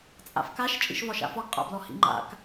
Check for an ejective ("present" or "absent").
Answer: present